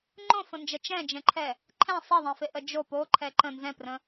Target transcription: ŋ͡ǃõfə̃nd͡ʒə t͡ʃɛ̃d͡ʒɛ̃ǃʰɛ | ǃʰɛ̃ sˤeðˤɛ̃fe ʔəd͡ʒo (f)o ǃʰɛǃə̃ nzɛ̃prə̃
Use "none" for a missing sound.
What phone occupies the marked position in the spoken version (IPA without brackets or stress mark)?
p